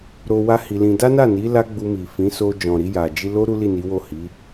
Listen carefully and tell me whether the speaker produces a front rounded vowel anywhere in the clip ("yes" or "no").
no